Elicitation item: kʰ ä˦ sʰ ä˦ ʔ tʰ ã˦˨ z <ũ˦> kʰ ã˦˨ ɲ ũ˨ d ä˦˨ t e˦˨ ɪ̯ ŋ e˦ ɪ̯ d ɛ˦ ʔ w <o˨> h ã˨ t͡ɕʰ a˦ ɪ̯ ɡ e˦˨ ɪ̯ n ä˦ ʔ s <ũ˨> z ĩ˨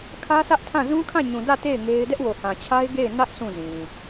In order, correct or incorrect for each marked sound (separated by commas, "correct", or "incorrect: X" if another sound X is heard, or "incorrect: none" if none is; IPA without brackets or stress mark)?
correct, correct, incorrect: ũ˦˨